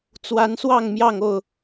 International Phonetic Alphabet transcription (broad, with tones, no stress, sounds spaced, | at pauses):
t͡s w a˨˦ n s w ɑ˥˨ ŋ m j ɑ˥˨ ŋ o˥˨ ʊ̯